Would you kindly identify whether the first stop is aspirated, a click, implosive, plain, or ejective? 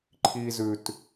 click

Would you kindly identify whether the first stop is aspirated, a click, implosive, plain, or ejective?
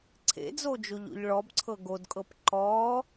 click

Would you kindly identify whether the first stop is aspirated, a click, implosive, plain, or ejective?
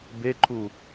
plain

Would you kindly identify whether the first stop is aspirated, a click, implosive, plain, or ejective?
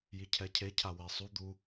aspirated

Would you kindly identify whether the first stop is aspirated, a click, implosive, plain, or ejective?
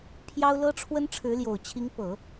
aspirated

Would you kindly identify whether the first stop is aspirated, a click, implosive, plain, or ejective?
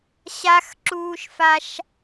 click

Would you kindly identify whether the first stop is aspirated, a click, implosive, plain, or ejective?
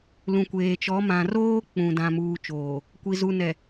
plain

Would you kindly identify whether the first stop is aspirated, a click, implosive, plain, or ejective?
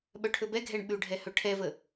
implosive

